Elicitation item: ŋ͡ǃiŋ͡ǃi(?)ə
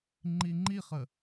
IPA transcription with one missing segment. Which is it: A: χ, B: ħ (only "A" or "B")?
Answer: A